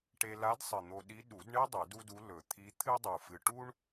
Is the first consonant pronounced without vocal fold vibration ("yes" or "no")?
yes